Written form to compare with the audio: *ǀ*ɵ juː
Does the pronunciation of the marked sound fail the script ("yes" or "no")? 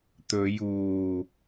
yes